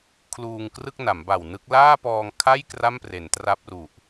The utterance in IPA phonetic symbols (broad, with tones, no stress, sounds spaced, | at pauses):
kʰ l uː˧ ŋ k r ɯ˥˩ k̚ n a˩˦ m b a˨˩ w n ɯ˦˥ k̚ l aː˥˩ p ɔː˧ ŋ kʰ a˥˩ j k r a˥˩ m p r e˩˦ n t r a˦˥ p̚ r u˨˩ ʔ